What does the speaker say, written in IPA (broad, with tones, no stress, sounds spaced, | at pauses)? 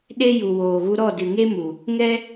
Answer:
ɗ e˦ j u˨ w oː˨ ɣ u˧ ɾ ɔ˦˨ d ɨ˨ ŋ e˦ m u˨ | ŋ ɛ˦